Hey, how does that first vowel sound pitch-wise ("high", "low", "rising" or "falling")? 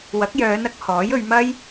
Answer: rising